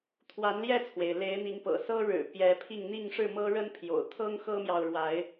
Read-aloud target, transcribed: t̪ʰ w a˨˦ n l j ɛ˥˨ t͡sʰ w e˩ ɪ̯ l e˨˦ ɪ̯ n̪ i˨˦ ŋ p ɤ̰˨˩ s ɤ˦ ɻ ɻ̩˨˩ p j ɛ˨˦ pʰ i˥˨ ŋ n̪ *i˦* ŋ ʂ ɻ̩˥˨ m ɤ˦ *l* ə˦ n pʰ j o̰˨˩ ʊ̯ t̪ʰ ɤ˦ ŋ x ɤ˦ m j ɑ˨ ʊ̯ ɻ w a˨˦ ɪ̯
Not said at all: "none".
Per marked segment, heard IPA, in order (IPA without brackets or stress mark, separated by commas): i˥˨, ɻ